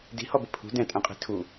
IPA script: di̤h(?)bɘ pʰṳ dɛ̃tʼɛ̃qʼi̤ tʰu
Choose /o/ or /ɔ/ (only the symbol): ɔ